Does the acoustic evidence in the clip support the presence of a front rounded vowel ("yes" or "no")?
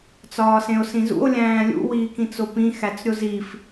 no